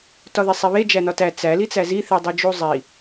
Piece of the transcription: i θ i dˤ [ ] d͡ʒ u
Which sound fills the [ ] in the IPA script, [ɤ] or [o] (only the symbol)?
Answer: o